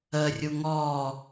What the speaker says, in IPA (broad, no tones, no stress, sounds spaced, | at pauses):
ə rʲ u ŋ ɔ